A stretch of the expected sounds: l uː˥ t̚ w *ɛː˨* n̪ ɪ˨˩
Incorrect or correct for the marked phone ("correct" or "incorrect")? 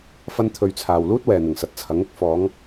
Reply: correct